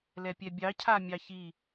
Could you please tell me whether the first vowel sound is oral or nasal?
oral